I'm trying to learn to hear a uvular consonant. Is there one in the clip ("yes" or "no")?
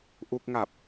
no